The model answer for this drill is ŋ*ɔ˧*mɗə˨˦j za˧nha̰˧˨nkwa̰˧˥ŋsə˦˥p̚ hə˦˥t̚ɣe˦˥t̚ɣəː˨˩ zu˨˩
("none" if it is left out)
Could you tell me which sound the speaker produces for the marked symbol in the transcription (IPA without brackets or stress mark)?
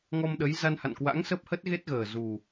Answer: ɔ˧